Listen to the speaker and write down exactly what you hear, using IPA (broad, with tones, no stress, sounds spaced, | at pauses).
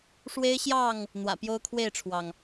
ʂ w e˦ ɪ̯ ɕ j ɑ˥˨ ŋ | n̪ w ä̰˨˩ p j o˦ ʊ̯ kʰ w e˥˨ ɪ̯ ʈ͡ʂʰ w ɑ˩ ŋ